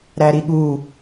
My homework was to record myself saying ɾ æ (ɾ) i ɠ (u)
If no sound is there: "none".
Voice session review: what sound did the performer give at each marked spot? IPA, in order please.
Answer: ɾ, u

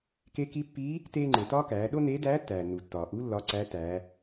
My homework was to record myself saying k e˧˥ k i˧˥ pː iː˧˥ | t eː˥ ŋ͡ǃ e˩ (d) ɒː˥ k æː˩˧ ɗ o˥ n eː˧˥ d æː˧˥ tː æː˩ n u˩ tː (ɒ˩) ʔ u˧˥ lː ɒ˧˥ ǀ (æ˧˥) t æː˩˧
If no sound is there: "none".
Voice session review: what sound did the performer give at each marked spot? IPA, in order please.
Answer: t, ɒː˩, æ˧˥

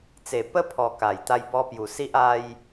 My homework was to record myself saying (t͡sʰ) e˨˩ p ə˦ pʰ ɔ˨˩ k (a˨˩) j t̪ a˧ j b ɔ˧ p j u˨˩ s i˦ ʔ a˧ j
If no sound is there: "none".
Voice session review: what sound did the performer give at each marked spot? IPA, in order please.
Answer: t͡s, a˨˩

